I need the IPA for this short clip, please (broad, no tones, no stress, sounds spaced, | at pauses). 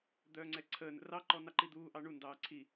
d̪ œː ŋ͡ǀ ɛ ǀʰ əː n ə̰ r ɑ ǃ ɔ n ɑ ǃ i d̪ uː ʔ ɑ ɳ u n d ɑː ǀʰ i